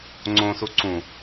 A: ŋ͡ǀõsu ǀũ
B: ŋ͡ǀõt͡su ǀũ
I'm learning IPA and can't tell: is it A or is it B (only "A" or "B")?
A